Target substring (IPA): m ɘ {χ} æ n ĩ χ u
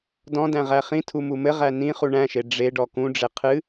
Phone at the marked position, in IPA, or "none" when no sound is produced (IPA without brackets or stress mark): ʁ